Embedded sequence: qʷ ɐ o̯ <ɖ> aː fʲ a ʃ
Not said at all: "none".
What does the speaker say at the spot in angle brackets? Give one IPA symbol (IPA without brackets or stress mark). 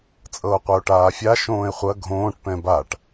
ʈ